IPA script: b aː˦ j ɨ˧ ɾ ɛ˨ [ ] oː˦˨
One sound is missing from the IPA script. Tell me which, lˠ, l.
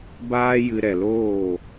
l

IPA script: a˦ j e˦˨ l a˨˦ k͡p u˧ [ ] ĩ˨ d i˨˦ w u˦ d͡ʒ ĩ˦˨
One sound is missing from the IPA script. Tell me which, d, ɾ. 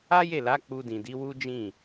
d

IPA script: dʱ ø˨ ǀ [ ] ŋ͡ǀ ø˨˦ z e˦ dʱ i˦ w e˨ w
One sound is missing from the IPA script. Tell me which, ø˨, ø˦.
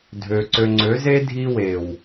ø˨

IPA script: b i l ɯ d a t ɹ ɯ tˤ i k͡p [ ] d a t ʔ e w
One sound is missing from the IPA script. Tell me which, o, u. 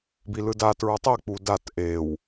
u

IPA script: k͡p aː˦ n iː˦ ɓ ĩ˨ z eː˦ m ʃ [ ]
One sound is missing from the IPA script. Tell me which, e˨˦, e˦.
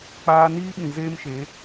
e˨˦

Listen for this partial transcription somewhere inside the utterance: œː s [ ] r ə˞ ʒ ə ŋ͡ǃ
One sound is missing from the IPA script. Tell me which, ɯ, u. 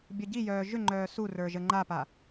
u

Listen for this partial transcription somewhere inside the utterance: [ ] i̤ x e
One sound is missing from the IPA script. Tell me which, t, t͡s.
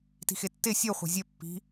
t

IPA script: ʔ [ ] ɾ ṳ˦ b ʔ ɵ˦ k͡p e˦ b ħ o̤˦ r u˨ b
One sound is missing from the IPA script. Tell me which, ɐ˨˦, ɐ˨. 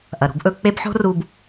ɐ˨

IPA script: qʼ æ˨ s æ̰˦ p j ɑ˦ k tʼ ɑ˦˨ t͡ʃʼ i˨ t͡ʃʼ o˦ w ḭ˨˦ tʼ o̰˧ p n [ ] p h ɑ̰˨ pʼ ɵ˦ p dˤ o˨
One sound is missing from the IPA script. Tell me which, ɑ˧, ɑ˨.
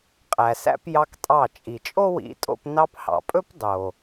ɑ˧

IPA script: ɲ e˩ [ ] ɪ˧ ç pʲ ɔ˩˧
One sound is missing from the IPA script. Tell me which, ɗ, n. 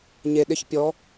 ɗ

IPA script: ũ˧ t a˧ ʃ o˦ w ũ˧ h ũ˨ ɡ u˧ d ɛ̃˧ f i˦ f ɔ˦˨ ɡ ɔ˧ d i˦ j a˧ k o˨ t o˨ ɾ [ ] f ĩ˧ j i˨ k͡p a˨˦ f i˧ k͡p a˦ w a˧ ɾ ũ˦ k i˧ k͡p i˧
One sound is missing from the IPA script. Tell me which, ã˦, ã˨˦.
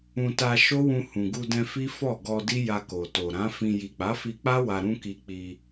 ã˨˦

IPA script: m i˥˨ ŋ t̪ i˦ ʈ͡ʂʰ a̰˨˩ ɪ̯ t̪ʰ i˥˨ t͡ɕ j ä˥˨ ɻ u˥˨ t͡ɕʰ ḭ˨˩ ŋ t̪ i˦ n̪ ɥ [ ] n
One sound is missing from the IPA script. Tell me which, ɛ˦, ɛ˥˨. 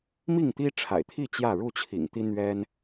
ɛ˦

